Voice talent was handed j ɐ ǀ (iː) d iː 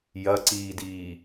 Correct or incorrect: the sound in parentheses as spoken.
correct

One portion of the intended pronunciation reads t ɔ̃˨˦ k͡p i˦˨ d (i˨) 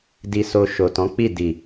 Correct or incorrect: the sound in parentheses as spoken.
correct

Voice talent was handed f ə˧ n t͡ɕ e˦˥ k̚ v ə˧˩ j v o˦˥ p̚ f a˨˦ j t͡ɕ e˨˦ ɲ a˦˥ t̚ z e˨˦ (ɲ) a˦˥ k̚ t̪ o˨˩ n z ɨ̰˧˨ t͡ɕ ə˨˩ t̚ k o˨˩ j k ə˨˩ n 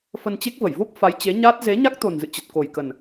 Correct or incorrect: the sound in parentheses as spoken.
correct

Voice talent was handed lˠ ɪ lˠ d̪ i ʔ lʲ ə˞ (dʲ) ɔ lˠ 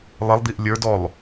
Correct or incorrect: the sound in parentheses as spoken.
incorrect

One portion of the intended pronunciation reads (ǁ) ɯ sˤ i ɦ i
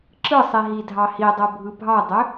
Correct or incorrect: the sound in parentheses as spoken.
correct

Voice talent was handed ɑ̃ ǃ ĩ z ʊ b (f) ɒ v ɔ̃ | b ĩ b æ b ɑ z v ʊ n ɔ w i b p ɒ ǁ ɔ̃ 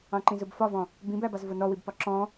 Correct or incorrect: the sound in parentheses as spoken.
correct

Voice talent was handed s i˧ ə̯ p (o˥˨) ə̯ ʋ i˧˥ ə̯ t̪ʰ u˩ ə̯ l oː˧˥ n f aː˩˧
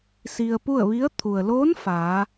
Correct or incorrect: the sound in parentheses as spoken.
incorrect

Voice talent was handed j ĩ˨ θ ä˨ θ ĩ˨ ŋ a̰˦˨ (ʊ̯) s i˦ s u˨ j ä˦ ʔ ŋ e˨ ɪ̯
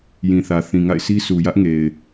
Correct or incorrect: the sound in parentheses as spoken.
incorrect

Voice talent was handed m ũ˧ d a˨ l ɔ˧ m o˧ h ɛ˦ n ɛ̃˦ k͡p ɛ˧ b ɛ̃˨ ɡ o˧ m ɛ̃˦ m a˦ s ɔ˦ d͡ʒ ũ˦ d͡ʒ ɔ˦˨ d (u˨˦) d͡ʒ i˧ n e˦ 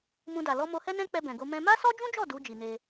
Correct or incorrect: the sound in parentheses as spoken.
correct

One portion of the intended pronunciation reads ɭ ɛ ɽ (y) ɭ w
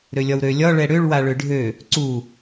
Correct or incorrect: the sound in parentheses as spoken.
incorrect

